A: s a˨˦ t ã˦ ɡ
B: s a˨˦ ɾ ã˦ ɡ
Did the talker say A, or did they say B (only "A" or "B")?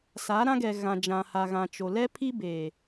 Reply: B